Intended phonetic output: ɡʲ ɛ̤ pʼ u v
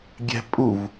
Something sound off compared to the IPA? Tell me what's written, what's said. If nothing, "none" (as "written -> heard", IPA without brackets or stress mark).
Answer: none